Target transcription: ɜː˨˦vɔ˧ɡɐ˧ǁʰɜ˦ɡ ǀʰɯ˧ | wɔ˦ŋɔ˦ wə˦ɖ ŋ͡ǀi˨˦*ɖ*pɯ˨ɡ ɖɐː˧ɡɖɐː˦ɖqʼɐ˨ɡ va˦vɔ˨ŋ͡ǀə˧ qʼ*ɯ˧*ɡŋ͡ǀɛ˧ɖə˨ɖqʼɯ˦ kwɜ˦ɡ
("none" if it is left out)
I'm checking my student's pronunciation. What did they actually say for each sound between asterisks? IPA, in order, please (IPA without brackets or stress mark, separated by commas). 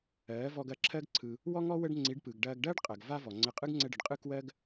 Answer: ɖ, ɯ˦